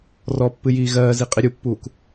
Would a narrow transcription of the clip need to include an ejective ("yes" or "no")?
yes